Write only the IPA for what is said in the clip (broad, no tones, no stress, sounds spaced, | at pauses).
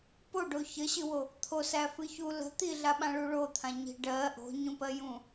p o ɖ o ç ə ɕ ɨ w o | t̪ʰ o s æ f ɨ ç u l ə̤ t̪ i ɮ a ɓ ã ɭ u ɭ o t̪ʰ ã ɲ i̤ ɖ ɜ ʔ o̤ ɲ ũ p ɜ j ũ